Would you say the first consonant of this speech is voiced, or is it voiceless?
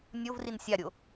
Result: voiced